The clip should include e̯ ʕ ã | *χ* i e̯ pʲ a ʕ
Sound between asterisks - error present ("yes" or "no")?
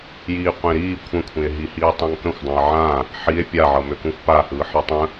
yes